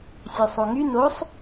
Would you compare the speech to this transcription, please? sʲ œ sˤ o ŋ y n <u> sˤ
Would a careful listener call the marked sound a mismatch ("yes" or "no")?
yes